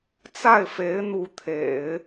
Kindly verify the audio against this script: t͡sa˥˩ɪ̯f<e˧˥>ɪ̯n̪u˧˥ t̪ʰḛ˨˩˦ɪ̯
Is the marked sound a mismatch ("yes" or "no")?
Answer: no